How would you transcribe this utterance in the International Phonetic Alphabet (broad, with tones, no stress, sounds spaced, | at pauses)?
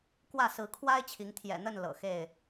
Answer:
k w ä˥˨ s ɹ̩˨˦ kʰ w a˦ ɪ̯ t͡ɕʰ i˨˦ ŋ t̪ʰ j ɛ̰˨˩ n̪ ə˥˨ n l ɤ̰˨˩ x e˥˨ ɪ̯